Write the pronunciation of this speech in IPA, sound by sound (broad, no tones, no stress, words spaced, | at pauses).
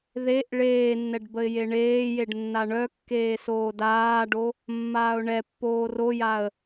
ðeʔ ɭeːnːɛɖ bəɪ̯jeɳeːjeɖ nːaɳœkːeː soːdaːɖo | mːaːʊ̯ɳɛpːoː rojaə̯